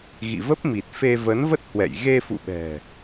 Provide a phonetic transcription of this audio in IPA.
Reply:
ɣḭ˧˨və˦˥p̚mi˨˩t̚fe˧ və˨˦nvə˦˥t̚hwɛ̰˧˨j ɣe˧fṵ˧˨ɓɛ̤˨˩

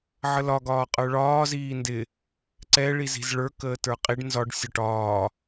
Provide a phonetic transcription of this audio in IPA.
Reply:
ʕəlɒ ɡɒːqʼə˞ɭɒː ziːndɪ | ǀɛ ɭizi̤zɭə˞ kəːtə˞qʼiɖ nzɒɖ sʲɒʈɒː

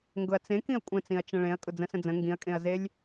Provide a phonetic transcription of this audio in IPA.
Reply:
ŋɡʊɐ̯t͡sẽ kĩɐ̯kʷʼə̃t͡sĩɐ̯ t͡ʃə̃ɭẽɐ̯ kʼʊd͡zə̃sə̃d͡zə̃ ŋɡĩɐ̯kʼẽɐ̯zelʲ

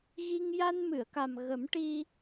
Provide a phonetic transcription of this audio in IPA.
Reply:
ɣi˧ŋ ja˧nmɨ˨˩˨ə̯ka˨˩m ɣə˨˩˦mʈi˧

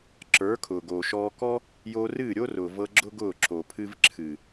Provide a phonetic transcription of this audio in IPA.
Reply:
ǁə˞˨˦kʰʊː˨ ɡoː˨ʃɔː˧kɔ˦ | jo˧ rɨː˦˨ɾʲo˦rʊː˨vɤ˧ ɡ͡ǁʊ˦ɡʊː˦˨ ǁo˨pʰɨ˧v ǁʰɨ˨

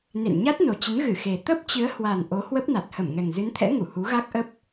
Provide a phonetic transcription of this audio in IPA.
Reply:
nḛ˧˨nɲa˦˥t̚no˨˩t͡ɕə˨˦n ɣɨ˧˩xe˨˩ t̪ə˦˥p̚t͡ɕɨ˨˦ə̯hwa˨˩n ʔo˨˦hwə˦˥p̚na˨˩t̚ hə˧˩mŋɛ˨˩ŋzɨ˨˦nt̪ʰɛ̰˧˥ ŋu˧˩hu˨˦ɣa˦˥k̚ʔə˦˥p̚

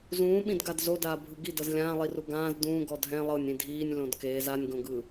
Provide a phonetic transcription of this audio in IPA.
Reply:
zũːɓĩdɡad zodaːbʱɯ ɡi dɤzlʲãːlˠiru ɡãːz dũː ɡɔdʱɛ̃ lˠɤnʲĩ dʱiːnʲ lõdkeːz anʲɡõɡɯ

